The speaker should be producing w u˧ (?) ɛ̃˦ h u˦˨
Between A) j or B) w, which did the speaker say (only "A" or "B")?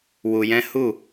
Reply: A